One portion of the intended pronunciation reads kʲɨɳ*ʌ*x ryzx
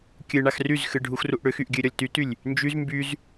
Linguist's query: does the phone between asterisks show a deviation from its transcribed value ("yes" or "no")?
yes